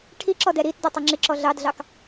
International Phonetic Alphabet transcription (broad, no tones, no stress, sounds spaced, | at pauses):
ʈʰ i ǁ ɔ d ɛ ɾ i t d ɔ tˤ ʌ ŋ͡ǁ ɪ ǁ ɔ ɮ ɑ d ɮ ɑ k